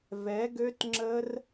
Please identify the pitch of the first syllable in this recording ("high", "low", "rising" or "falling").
rising